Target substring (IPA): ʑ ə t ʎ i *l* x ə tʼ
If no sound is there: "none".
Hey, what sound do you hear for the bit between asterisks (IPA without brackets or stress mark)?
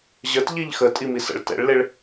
ʎ